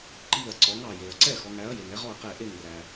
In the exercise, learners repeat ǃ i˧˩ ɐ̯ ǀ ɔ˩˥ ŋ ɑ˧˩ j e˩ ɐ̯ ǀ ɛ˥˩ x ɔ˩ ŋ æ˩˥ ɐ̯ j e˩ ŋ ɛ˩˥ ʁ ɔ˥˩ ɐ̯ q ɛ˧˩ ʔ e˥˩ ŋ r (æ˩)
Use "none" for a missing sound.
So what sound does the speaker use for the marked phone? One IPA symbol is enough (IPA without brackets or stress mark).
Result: æ˩